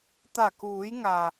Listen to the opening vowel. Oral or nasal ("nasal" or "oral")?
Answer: oral